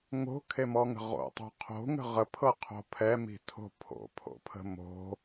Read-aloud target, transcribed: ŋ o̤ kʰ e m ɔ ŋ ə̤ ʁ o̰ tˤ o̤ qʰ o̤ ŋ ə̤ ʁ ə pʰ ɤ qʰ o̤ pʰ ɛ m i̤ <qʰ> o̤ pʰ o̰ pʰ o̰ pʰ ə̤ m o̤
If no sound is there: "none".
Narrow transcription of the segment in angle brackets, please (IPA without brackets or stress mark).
tʰ